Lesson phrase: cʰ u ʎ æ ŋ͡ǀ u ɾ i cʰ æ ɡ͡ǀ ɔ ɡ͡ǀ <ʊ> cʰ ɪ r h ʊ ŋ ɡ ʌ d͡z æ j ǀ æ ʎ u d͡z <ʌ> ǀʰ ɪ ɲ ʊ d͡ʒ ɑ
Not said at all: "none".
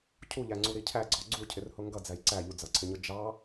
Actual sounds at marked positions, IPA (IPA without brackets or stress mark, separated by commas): u, ʌ